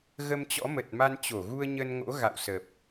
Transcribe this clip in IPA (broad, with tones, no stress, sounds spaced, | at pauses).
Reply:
ɣ ə˧ m t͡ɕ ɔ̰˧˥ m ə˨˩ t̚ m a˧ n t͡ɕ o˧˩ ɣ u˧ ə̯ ɲ ə˧ n ŋ o̰˧˥ ɣ a̰˧˨ w s ə˨˩ p̚